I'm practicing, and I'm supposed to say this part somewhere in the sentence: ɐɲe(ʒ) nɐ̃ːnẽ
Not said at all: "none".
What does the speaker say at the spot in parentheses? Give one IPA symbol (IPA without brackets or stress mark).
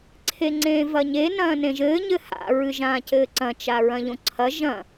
none